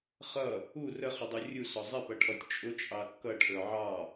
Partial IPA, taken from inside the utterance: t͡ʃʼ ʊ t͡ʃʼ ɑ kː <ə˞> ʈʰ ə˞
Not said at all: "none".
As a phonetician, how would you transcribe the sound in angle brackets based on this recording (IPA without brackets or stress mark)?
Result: ʌ